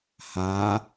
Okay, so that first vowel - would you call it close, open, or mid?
open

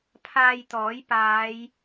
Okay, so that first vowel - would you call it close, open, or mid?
open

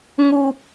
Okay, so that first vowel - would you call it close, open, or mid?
close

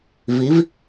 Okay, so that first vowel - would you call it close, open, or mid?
close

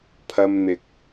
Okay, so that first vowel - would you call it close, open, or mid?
open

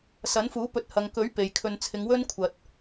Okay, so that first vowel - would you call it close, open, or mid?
open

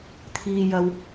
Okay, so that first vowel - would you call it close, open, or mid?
close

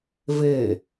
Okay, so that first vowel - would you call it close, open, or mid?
mid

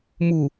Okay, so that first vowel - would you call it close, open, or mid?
close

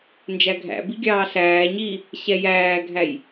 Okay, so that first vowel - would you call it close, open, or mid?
open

